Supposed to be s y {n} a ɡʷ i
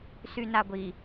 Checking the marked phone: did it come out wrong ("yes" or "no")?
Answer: no